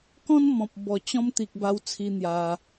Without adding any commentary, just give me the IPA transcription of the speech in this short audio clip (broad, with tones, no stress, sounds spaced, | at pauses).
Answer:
k ɔ̃˦ n m ɔ̃˨ p̚ b ɔ˨˩ t͡ɕ ɔ̃˧ m t̪ i˨ k̚ b a˧ w t͡sʰ i˧ n̪ j a˧